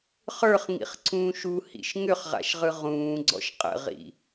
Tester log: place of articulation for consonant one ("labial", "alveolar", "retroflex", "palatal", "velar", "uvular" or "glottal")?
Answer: uvular